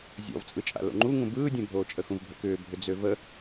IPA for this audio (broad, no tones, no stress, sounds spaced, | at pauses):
zʲ ɔ̰ v t͡sʼ ɯ t͡ʃʼ a̰ l o̰ ŋ͡ǃ u ŋ ũ b ɯː dʲ õ bʱ oː t͡ʃʼ ə x ũ v bʱ ə̰ k ʏː bʱ ʏ d͡z ø v ə